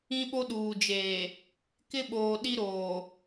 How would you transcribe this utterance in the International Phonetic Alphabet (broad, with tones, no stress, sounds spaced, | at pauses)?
ĩ˦ ɓ o˦ ɗ uː˨ d͡ʒ eː˨ | k ɪ˦ ɓ oː˨ ɗ i˦ ɾ oː˨